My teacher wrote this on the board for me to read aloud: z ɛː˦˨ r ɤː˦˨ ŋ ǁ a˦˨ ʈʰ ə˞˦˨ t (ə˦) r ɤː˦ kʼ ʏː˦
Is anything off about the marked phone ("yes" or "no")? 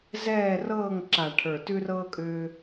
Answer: yes